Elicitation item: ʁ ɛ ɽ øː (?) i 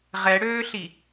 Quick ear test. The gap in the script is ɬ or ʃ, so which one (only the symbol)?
ɬ